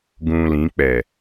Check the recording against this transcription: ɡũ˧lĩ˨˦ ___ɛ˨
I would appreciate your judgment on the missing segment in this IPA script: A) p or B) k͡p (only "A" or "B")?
B